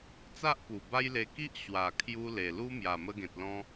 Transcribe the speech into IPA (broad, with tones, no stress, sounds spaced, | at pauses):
t͡s a˦ ʔ p u˨˩ b a˦ j l e˧ k i˦ ʔ ɕ w a˨˩ kʰ j u˧ l e˨˩ l u˦ m j a˨˩ m ə˧ ɡ ẽ˨ t̚ l ɔ̃˧